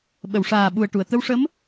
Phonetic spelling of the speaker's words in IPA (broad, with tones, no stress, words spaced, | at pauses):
ɓə˨˩˨wʂaː˨˩ɓu˨˩ə̯ʈu˨˩˨ə̯ t̪ə˧wʂə˧˥m